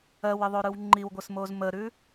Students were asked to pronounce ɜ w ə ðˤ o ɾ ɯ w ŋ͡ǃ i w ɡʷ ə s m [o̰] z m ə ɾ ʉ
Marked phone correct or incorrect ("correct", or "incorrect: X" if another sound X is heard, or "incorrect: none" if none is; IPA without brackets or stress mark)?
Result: incorrect: o